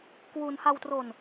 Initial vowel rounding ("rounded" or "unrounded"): rounded